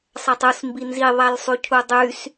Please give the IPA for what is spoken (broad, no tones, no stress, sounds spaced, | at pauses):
sˤ æ tˤ u s m b i n z i ðˤ æ l sˤ y cʰ u dˤ y s